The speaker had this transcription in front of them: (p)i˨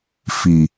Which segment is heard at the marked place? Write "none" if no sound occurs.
f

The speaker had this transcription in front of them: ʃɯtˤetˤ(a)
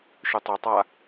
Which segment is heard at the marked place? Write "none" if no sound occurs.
a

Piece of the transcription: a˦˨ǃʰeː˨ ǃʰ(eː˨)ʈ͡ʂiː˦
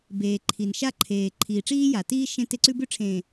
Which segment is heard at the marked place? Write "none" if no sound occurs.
iː˨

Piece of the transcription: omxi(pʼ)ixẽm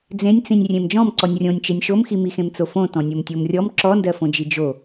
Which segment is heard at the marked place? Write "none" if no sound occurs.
m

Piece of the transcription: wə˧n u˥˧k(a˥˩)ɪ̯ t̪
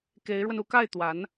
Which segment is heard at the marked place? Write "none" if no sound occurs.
a˥˩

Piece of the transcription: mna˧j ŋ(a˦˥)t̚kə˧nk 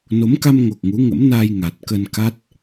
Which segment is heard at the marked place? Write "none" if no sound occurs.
a˨˩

